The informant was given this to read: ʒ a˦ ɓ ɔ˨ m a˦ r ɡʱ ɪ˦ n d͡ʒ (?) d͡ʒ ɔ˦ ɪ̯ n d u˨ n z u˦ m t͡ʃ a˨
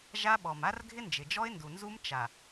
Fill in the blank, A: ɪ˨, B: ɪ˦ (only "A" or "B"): A